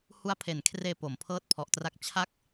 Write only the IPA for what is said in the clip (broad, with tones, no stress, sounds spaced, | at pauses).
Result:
h u˦˥ a̯ pʰ e˨˩ n kʰ r eː˧ p o˩˦ m pʰ ɤː˥˩ t̚ pʰ ɔ˨˩ ʔ t r a˥˩ k̚ t͡ɕʰ a˦˥ k̚